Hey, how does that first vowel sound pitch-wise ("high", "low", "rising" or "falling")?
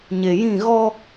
low